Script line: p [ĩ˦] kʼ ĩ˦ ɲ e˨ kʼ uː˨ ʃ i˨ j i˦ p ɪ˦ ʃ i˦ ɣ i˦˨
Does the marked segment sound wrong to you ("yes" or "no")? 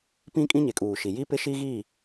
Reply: no